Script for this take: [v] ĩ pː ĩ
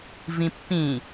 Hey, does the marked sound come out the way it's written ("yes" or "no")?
yes